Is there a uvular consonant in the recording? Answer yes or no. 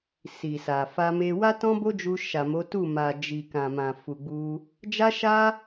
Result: no